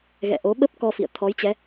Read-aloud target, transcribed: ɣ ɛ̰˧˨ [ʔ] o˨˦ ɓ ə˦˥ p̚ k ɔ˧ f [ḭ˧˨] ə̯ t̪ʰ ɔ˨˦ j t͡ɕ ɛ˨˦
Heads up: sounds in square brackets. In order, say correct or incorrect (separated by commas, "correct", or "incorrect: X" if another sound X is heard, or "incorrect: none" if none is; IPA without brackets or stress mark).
correct, correct